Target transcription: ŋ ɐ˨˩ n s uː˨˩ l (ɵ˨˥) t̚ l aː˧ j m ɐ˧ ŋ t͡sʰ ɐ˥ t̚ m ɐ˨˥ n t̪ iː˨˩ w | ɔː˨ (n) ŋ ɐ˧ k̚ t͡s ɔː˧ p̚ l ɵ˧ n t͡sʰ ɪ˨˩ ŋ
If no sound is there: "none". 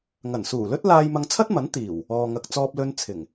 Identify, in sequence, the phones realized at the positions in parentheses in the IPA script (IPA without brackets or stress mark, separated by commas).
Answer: ɵ˥, none